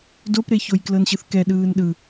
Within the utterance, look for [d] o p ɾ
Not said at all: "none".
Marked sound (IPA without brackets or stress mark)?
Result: d